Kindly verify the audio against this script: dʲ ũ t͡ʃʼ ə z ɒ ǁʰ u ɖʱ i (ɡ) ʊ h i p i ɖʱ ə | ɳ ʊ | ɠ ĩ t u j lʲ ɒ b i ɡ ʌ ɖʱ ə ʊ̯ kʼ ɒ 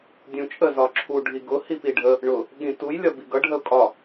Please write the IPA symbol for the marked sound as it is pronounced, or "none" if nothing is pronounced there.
ɡ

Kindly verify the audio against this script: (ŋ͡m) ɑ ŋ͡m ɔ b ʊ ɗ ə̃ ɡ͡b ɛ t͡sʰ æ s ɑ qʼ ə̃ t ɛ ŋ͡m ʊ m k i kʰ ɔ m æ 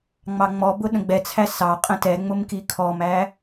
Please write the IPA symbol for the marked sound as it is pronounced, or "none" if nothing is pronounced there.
ŋ͡m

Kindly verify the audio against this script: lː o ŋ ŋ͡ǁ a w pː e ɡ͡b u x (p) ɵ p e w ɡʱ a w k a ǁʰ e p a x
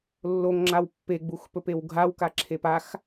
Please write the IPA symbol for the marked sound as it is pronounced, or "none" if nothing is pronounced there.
p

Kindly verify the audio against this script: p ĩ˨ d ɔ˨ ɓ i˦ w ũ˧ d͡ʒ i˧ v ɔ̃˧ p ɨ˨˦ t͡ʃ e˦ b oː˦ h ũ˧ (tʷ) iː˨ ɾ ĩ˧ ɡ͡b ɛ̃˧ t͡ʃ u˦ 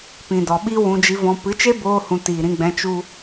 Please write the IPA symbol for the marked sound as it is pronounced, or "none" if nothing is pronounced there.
t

